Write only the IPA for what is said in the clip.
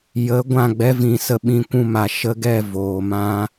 jə˨˦ ɡʷã˦˨ɡ͡bɛ˦vĩ˨sə˧ ɓĩ˧kʷũ˧ma˨ ʃə˧ɡɛ˦˨ voː˨mã˦

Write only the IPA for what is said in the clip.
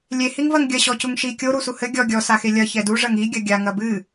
lʲehiŋvɐŋ ɡʲɐɕɔcuŋʃi kʲoɾusu hɘ ɡʲɔ ɡʲɔsaxe lʲɐ çɛdu ʐɐŋi ɡʲɐɡʲa ŋɐbɨ

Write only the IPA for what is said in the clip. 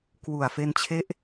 kwu˨˩a̯fe˧nt͡ɕʰe˦˥ʔ

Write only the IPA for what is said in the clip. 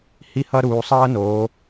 hi˥hʌ˥ ɾuː˩˧sˤʌː˥noː˩˧

